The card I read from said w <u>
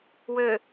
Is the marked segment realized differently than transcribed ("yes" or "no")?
yes